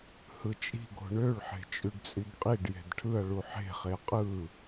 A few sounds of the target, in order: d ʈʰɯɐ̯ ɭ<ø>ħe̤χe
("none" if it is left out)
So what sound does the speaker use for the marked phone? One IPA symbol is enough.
u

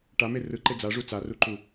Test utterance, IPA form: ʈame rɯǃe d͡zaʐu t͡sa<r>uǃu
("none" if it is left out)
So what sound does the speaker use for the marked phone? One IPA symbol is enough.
r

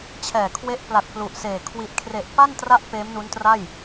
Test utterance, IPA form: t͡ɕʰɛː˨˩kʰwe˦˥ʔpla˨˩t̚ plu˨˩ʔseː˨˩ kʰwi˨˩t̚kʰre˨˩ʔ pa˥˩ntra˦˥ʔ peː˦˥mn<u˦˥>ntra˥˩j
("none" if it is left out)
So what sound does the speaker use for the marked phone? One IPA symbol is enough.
u˦˥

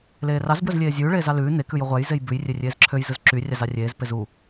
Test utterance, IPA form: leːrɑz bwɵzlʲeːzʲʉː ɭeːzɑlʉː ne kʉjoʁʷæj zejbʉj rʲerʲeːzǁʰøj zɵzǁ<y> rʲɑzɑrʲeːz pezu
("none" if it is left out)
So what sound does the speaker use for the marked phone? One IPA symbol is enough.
y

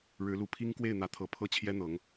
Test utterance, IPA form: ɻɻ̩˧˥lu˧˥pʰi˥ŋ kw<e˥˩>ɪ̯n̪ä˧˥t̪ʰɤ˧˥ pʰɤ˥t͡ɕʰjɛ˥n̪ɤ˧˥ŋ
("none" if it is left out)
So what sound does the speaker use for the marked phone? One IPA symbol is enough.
e˥˩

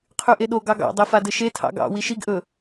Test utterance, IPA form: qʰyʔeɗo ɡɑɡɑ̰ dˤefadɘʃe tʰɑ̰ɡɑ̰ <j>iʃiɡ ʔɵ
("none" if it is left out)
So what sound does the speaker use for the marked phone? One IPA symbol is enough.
w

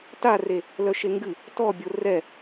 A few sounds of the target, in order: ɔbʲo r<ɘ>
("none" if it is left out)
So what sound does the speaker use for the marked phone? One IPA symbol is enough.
ɛ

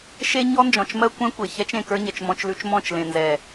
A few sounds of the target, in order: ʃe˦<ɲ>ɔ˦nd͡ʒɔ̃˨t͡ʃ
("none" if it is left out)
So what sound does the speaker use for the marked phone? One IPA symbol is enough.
ɲ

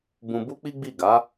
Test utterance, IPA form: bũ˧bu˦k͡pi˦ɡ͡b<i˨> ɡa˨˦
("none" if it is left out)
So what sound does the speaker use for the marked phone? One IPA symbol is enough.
i˦˨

